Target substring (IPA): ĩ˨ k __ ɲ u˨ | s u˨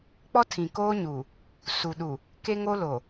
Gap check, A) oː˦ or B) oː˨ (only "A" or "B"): A